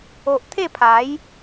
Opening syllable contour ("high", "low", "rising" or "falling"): low